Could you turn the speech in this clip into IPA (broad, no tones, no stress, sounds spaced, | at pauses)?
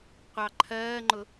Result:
qʷ ɑ ǃʰ ɜː ŋ͡ǃ ʊ